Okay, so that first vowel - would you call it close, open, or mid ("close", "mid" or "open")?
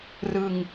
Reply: close